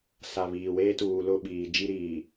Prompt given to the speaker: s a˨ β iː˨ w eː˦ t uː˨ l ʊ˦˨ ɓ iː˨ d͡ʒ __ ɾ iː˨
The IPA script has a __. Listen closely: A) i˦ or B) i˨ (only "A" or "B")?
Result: A